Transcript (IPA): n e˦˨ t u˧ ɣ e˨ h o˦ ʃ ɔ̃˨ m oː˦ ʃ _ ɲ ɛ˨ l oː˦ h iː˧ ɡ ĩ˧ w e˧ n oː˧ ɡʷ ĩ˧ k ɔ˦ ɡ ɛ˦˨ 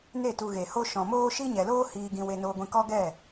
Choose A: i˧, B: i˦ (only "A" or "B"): B